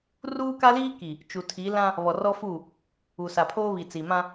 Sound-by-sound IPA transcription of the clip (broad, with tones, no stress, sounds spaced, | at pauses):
r uː˦ k a˦ l iː˦ k i˨ | t͡ʃ u˨ tʰ i˨˦ l ã˦ | β ɔ˨ r ɔ˦ f u˦˨ | u˨ s a˨ pʰ oː˦ β i˨ t͡s i˨ m ã˦